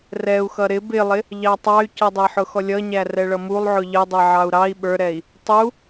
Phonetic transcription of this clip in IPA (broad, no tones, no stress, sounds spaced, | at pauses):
r ɛ u̯ x ʌ ɾ ɪ b ɪ lˠ ɪ | ʎ ɑ tˤ ɑ y̯ c ʌ dˤ ɛ ħ ʊ x ɔ lʲ ʌ ɲ æ r ɛ ɭ ʌ m u lˠ ʕ ʊ ʎ ə dˤ ɛ ʕ ɑ u̯ ɾ ɑ i̯ ɓ ə˞ ɾ ɛ i̯ | tˤ u